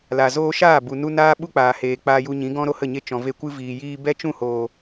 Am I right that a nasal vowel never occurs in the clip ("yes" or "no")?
no